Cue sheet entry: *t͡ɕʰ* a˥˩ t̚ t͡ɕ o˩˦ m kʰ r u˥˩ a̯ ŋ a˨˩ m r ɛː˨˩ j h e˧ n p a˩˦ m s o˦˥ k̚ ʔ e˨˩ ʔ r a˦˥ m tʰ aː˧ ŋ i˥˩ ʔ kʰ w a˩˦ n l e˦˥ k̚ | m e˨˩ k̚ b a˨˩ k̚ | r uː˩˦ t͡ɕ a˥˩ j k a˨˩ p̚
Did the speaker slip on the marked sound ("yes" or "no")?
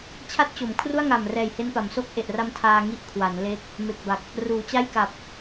no